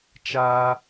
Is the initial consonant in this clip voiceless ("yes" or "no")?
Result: yes